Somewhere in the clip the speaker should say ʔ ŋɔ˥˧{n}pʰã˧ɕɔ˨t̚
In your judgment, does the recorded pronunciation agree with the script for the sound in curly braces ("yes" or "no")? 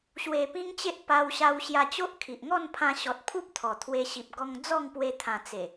yes